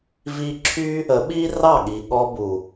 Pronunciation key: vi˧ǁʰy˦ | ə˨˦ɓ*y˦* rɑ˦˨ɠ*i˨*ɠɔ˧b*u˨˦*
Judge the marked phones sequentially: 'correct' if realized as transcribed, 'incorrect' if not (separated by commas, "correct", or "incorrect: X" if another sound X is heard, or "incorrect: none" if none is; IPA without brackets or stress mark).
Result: incorrect: i˦, correct, incorrect: u˨